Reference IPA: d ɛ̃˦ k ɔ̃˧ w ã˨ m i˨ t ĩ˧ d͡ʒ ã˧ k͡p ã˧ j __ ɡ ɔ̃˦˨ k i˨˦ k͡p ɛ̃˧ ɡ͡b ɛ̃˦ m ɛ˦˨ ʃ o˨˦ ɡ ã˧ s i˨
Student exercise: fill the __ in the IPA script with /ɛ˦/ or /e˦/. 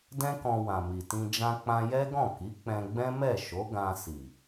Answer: ɛ˦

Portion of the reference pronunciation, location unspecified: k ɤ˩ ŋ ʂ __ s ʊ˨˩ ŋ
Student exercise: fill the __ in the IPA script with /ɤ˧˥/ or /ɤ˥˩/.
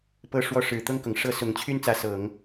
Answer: ɤ˥˩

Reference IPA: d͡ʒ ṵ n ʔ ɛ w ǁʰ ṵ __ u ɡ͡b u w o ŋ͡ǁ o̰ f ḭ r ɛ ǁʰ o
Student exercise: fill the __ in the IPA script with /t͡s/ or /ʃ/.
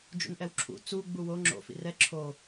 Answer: t͡s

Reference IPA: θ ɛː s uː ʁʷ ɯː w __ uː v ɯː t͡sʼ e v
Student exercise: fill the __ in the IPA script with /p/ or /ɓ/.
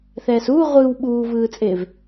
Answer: ɓ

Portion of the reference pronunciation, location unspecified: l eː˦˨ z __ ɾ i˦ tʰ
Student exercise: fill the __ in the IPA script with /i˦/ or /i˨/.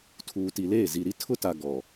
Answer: i˨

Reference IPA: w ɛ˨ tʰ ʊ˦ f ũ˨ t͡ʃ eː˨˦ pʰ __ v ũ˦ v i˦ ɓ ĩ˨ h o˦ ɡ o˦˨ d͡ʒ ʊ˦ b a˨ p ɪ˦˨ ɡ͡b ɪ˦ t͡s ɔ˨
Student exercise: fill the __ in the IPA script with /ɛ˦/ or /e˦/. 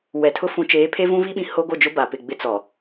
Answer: e˦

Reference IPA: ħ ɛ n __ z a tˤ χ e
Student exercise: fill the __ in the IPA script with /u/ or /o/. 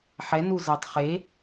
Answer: u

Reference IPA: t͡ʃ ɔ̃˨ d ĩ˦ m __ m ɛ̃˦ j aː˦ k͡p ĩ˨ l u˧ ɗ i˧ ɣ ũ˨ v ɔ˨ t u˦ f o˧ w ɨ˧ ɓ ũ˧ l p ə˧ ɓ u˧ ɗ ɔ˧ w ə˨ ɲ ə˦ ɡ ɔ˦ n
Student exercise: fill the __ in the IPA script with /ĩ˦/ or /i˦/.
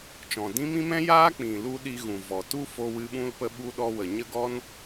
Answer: ĩ˦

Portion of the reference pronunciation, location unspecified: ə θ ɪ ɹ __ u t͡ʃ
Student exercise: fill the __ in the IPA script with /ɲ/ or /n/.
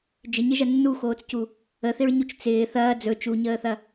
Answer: ɲ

